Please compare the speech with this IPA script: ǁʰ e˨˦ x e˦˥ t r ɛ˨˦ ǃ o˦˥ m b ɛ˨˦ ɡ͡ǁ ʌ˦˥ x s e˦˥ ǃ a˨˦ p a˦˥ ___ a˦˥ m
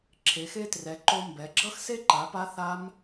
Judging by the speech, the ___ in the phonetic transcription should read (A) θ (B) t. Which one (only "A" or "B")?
A